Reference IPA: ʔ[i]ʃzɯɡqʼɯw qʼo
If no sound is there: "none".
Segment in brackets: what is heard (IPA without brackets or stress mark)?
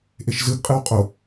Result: e